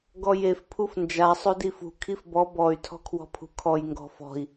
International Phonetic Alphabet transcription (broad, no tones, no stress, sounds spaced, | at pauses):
ɡ ɔ j e f pʰ u f n d͡ʒ a sˤ o d i f ṳ kʰ i f b ɔ b ɔ y̯ tʰ ɔ̤ kʰ w ɔ̤ pʰ ṳ kʰ ɔ j ŋ ɡ ɔ̤ f ɔ̤ i̯